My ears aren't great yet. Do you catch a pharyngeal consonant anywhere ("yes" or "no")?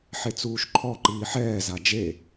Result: yes